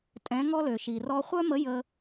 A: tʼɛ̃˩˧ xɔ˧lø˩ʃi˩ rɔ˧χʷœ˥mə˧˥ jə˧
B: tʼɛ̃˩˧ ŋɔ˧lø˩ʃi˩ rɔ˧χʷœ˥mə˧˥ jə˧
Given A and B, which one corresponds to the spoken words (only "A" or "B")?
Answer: B